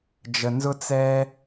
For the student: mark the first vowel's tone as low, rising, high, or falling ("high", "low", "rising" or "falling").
low